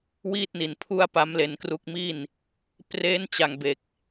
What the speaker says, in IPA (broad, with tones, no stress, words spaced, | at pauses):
wiː˥˩t̚ni˨˩npʰu˥˩a̯ pa˦˥mle˧nkru˦˥k̚mi˥˩n | pre˦˥n t͡ɕa˧ŋbe˨˩k̚